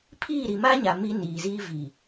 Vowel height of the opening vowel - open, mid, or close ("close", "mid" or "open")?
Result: close